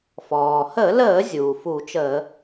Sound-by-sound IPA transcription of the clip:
f ɔː˩ h əː˧˩˧ l əː˧˩˧ zʲ uː˩ f u˧˩˧ t͡ʃ əː˧˩˧

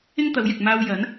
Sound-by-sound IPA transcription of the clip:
ɪ˥ ŋ t̪ ɐ˨˧ w j ɪ˨ k̚ m aː˧ w j ɐ˨˥ n

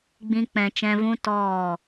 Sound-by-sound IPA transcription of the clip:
ɡ͡b ĩ˦ k͡p ɛ̃˧ t͡ʃ ɛ̃˧ v ũ˦ t ɔ˦˨

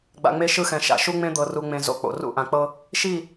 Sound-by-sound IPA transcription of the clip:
ɡ͡b a̰˨ ŋ͡m e˦ ʃ ɯ˦ x ɛ̃˨ ʃ a̰˨ ʃ u˦ ŋ͡m ẽ˦ d̪ ɤ˨ r u˨ ŋ͡m ẽ˨ z o̰˨ k͡p o̰˨ r ṵ˦˨ ʔ ã˨ k͡p ɤ˦ | ʃ i˦˨

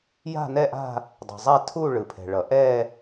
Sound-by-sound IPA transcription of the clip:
j a̤˥˧ n ɛ˥˧ ʔ a̤˥˧ | dˤ ɛ̤˩ zˤ a˥˧ tʰ u˥˧ ɭ ɯ˩ pʰ ɛ̤˩ ɭ ʌ˩ ʔ ɛ˥˧

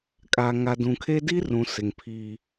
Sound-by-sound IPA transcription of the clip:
kʼ a˨ ŋ a˨ d ũ˨ kʰ e˦ d i˦ r ũ˨ s ɪ˨ ŋ pʰ i˦

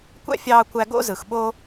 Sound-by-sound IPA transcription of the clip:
kʷ æ̰˥ fʲ ɑː˧ kʷ æ˧ ɡ o̰˥ z ɯ˩ x ɓ o˥

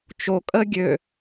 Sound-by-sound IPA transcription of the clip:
t͡ʃ o kʼ ə ɡʲ ø

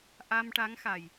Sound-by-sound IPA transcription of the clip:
ʔ a˧ m ʈ a˧˥ ŋ x a˨˩ j

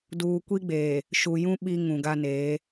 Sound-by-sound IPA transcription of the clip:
d uː˨ kʷ i˦ ɡ͡b eː˨ | ʃ u˨ j ũ˦ ɓ i˦ ŋ ũ˨ ɡ a˦ n eː˨˦

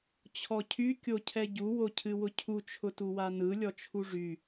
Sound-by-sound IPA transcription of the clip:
t͡ɕʰ ɔ cʰ y kʲ o cʰ ɛ ɟ u w o cʰ ɨ w ʊ cʰ u t͡ʃʰ ʊ t u w a n ɯ lʲ ɔ t͡ʃʰ u ʐ y

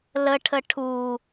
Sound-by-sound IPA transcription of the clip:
l ə ʈʰ ə ʈʰ u

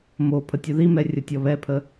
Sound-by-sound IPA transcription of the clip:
m o pʰ ə tʲ o ð i m ɛ rʲ ə tʲ ɔ β ɛ pʰ ə

